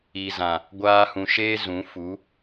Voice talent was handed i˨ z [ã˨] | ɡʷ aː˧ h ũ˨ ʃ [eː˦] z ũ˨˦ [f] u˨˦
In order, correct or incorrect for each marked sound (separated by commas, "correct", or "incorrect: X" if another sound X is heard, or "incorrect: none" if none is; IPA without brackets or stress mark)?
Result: correct, correct, correct